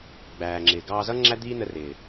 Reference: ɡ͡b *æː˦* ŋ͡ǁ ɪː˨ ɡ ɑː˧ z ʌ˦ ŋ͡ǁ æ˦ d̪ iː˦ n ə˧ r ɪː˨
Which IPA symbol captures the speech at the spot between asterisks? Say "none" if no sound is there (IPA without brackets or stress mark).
æː˨